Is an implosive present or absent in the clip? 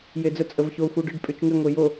absent